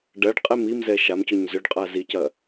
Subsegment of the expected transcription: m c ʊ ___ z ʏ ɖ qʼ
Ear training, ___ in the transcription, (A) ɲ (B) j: A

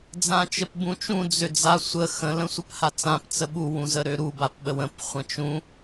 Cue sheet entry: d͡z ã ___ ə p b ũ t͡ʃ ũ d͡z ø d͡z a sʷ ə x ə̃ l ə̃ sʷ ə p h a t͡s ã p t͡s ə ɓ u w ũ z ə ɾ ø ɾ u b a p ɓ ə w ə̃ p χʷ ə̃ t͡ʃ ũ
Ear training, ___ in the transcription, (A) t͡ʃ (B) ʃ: A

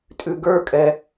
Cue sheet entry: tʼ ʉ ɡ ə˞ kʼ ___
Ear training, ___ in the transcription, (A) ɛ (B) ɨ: A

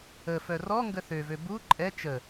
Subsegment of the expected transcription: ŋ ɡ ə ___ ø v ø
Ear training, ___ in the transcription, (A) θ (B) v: A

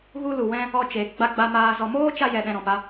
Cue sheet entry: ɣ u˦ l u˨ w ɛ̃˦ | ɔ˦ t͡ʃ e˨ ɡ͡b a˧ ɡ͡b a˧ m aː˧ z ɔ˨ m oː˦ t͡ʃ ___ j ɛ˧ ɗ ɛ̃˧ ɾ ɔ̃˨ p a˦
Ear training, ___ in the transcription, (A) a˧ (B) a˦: A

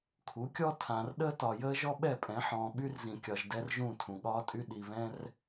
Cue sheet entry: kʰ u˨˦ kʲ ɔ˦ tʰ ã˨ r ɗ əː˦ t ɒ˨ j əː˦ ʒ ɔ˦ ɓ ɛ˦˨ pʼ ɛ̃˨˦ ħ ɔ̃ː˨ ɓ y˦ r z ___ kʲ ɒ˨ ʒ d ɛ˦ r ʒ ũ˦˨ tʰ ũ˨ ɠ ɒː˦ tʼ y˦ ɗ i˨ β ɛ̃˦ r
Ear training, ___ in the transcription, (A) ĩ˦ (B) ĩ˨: B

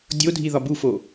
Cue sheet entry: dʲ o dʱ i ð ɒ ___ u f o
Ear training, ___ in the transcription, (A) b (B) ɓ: A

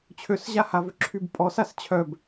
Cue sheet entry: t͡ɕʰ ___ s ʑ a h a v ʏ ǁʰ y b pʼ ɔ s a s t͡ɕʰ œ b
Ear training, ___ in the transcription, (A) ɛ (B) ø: B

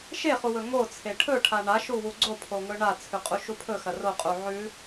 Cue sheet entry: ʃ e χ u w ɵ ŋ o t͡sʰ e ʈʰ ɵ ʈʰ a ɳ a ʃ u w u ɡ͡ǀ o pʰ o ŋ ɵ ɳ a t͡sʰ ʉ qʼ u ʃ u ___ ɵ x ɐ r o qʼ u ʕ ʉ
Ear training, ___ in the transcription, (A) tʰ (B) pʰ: B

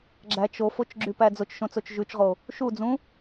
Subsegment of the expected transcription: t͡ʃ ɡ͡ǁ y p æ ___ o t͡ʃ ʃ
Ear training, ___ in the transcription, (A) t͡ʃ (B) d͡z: B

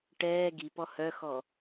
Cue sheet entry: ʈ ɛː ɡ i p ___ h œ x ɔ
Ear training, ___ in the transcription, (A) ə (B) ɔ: B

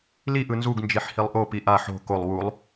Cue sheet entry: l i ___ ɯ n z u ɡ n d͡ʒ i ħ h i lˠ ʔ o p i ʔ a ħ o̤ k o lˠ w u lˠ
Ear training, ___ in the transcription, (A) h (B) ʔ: B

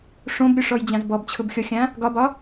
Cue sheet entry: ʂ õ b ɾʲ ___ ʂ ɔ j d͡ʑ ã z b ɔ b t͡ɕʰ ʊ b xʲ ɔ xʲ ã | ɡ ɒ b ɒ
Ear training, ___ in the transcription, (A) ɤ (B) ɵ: B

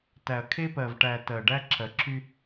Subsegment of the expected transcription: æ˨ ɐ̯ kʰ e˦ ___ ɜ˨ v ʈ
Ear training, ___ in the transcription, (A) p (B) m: A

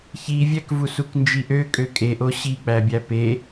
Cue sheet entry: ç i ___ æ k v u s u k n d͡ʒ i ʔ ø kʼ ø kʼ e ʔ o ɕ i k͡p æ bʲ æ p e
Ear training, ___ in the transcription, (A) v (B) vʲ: B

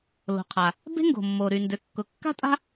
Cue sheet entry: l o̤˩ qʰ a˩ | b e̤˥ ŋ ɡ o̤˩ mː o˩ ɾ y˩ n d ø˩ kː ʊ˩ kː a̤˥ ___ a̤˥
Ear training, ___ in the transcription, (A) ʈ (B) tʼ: B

